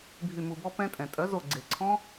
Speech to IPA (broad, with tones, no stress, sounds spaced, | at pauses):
bʱ y˧˩ m u˧˩ b ɔ˦˥ p ɛ̃˦˥ tʼ ɛ̃˩ tʼ œ˩˥ z o˧˩ ɡ͡ǀ e˩ ǀʰ ɔ̃˦˥